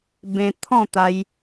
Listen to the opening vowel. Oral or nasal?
nasal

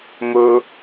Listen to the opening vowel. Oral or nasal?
oral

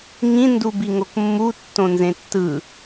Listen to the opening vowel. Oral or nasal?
nasal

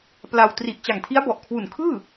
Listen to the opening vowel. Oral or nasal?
oral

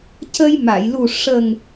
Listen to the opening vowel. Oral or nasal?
oral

